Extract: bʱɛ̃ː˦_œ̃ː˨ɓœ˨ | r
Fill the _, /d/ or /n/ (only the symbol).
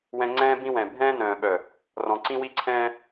n